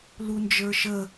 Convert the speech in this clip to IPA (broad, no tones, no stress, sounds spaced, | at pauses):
l u n d͡ʒ ə˞ ʃ ə